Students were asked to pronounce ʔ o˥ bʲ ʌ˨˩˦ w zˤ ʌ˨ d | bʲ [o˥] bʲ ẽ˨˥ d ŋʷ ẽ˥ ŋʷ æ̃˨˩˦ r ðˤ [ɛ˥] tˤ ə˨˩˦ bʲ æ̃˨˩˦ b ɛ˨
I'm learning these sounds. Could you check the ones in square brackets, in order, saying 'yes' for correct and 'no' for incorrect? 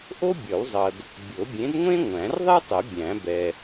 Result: no, yes

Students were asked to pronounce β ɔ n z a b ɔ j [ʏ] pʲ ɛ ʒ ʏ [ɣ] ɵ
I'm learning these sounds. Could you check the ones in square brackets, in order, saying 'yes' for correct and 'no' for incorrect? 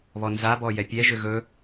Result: no, yes

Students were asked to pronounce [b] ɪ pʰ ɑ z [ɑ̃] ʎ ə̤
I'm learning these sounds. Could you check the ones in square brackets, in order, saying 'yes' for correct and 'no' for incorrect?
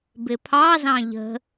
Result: yes, yes

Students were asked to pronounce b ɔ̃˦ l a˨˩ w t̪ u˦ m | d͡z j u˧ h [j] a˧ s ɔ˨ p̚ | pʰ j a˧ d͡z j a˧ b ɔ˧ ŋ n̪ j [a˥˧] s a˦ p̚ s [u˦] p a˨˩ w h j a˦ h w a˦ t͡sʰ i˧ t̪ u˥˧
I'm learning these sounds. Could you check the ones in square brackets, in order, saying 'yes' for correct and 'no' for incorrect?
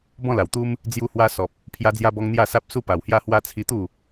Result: no, yes, yes

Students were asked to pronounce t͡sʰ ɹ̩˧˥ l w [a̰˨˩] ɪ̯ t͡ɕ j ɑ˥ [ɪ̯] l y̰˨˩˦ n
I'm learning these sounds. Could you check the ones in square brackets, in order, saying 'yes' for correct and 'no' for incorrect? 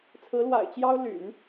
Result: yes, no

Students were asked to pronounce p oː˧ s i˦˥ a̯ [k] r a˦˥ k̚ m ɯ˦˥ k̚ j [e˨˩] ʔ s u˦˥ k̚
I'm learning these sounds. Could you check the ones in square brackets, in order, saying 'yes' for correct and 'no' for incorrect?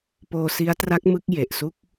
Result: no, yes

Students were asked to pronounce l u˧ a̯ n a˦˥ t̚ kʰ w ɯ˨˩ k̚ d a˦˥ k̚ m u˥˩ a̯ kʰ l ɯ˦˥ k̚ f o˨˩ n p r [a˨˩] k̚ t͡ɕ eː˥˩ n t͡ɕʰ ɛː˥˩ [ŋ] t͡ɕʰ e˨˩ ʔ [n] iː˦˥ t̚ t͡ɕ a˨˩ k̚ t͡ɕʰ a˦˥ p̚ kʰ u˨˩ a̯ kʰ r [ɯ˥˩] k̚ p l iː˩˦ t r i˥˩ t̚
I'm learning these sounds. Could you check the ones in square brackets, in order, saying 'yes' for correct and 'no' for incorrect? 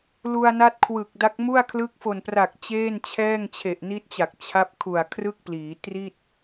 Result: yes, yes, yes, yes

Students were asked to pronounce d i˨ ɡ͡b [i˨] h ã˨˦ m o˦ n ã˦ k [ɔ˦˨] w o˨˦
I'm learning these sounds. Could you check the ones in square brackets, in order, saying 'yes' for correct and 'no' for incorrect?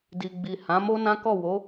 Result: yes, yes

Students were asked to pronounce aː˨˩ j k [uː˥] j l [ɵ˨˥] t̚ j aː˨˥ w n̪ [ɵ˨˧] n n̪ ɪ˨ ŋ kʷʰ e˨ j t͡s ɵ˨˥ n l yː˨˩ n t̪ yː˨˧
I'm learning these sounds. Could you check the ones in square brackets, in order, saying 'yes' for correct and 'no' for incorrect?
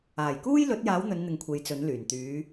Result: yes, yes, yes

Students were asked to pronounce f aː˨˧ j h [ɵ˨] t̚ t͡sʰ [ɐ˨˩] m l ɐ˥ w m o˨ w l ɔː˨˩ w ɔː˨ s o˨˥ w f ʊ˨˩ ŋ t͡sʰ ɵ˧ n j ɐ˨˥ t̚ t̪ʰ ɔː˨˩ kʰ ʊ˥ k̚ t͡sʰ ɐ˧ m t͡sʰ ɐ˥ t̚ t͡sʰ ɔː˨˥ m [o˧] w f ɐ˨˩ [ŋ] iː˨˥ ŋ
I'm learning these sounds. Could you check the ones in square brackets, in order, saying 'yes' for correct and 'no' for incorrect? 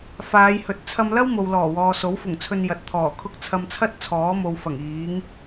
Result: yes, no, no, yes

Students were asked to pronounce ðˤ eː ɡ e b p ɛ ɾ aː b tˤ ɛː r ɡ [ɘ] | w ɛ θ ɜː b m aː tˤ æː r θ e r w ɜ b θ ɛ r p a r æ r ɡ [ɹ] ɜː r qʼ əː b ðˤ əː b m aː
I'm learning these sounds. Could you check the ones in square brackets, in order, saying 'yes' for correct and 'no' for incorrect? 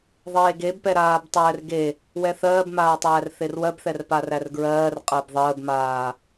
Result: no, yes

